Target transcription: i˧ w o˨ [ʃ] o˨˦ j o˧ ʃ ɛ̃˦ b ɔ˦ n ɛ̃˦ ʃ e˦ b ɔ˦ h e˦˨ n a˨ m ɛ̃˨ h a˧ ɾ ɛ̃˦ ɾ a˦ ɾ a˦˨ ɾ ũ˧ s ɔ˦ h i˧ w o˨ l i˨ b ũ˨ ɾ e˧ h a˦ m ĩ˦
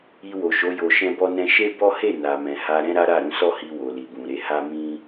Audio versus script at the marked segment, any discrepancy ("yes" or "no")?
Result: no